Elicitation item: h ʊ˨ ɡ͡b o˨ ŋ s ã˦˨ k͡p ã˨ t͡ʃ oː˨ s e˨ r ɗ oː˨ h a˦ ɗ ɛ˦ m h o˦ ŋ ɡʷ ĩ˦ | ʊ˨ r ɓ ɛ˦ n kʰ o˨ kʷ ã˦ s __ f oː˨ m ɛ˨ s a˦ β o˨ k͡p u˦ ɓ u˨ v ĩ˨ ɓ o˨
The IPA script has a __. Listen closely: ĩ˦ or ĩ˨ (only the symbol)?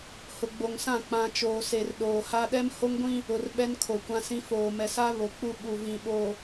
ĩ˦